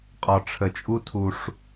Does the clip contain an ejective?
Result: yes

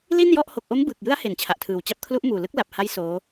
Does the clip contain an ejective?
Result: no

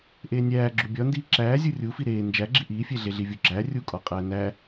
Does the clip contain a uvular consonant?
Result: yes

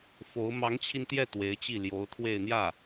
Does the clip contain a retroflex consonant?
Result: no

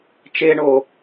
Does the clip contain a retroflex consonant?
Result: yes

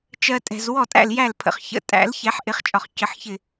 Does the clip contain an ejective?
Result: yes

